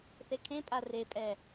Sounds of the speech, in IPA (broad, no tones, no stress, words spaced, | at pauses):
θekʰẽpʼa repʼɛ